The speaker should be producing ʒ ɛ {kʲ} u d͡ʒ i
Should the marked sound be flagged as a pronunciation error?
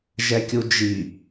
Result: no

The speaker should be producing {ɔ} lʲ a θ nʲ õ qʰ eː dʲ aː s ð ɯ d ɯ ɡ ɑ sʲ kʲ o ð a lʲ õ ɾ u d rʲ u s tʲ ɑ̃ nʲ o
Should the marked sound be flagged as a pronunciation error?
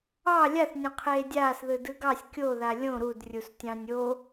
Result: yes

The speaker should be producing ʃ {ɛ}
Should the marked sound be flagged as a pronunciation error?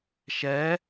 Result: no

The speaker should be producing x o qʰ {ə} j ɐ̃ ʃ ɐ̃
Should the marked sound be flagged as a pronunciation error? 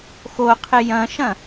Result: yes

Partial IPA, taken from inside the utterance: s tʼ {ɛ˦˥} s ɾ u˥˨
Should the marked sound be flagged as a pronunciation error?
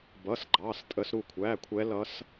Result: yes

